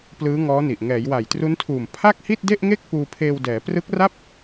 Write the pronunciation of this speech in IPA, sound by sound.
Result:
p l ɯː˦˥ ŋ ɔː˦˥ n i˨˩ ʔ ŋ ɛː˩˦ j w a˨˩ j t r u˦˥ n tʰ uː˨˩ m pʰ a˥˩ k̚ h i˥˩ t̚ d e˥˩ ʔ ŋ e˥˩ k̚ p uː˧ pʰ eː˧ w d ɛː˩˦ p r ɯ˦˥ k̚ r a˥˩ p̚

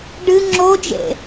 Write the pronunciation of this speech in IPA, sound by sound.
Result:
ɖ ɨ ŋ͡ǁ o d͡ʒ ḛ

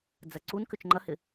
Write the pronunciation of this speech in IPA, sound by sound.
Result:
d͡z ɐ ǀ u n k ʏ t͡ʃ ŋ͡ǃ ɐ h ɪ

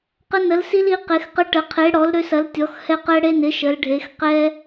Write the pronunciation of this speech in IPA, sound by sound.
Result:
q ə˦ n ə˨˥ l s i˦ l i˨˥ q e˨˥ x q ə˦ ʈ ə˨˥ qʰ e˨˥ ɽ ɔ˨˥ l ɾ ø˦ s ɐ˨˥ l tʲ ɔ˨˥ x h ɛ˦ q ɛ˦ ɽ e˦ n ɪ˨˥ ʃ ə˨˥ l ɖʱ e˨˥ x q ɛ˦

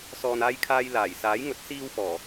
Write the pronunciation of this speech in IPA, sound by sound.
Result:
s ɔː˨ n aː˧ j kʰ aː˧ j l aː˨˩ j s aː˨˥ j ŋ ɵ˨˥ t̚ s iː˧ w f ɔː˨˩

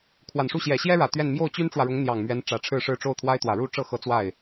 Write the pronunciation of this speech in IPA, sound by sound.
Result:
kʰ w a˨˩ n ʂ u˥˩ ɕ j ɛ˨˩ ɕ j ɛ˥ ɻ ä˨˩ t̪ ɥ ɛ˥˧ n m j o˥˩ ʊ̯ t͡ɕ y˥ n ʈ͡ʂ w ä˨ ɻ ʊ˧˥ ŋ n̪ j ɑ˨˩ ŋ m ɥ ɛ˧˥ n ʈ͡ʂ ä˧˥ ʈ͡ʂʰ ɻ̩˥˧ ʂ ɻ̩˥˧ ʈ͡ʂ o˥˩ ʊ̯ t̪ʰ w a˥ ɪ̯ t̪ w ä˨˩ ɻ u˥˧ ʈ͡ʂ ɤ˥˩ x ɤ˧˥ t͡s w a˥˩ ɪ̯

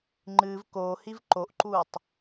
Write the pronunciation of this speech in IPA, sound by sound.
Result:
ŋ͡ǃ ɨː v k oː h i v ǃ o ʔ ǃ uː tˤ

